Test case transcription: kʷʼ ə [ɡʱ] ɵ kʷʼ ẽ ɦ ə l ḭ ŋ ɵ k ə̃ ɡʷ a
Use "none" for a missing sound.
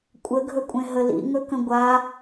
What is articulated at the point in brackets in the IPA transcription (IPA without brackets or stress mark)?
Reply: ɡʱ